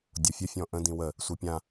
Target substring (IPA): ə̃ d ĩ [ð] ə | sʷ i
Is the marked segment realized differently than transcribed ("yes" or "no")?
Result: yes